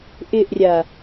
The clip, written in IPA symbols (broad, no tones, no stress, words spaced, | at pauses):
ʔɪʔrʲa